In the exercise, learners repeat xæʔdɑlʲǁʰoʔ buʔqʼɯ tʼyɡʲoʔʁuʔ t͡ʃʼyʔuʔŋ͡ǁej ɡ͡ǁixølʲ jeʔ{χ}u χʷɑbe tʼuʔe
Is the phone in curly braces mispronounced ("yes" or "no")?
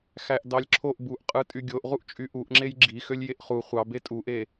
no